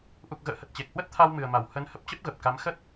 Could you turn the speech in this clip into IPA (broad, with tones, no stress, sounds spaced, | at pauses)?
ʔ u˨˩ k̚ ɣ ə̰ː˧˨ h ə˨˩ t̚ t͡ɕ e˨˩ k̚ h w ə˦˥ t̚ t̪ʰ a˧ w m ɨ˨˩ ə̯ m a˧˩ w h ə˨˦ n h ə˦˥ p̚ t͡ɕ ə˦˥ p̚ ɣ ə˨˩ p̚ k a˨˦ m x ə˦˥ t̚